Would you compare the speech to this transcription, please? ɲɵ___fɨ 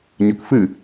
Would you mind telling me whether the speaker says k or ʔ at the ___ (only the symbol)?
k